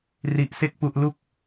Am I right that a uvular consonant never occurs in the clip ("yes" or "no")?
yes